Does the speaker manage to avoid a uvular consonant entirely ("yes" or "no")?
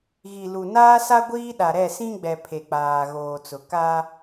yes